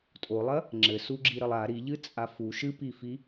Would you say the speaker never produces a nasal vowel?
yes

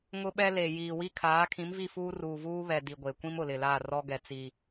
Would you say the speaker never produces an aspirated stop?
no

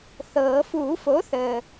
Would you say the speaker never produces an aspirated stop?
yes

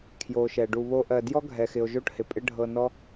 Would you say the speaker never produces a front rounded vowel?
yes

